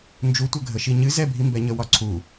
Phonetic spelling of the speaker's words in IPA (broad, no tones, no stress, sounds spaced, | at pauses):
n d͡ʒ u tʷ ə ɡʱ ə ʃ i ɲ ɨ z ɛ bʱ i m b ɛ ɲ ə w ɒ ǀʰ u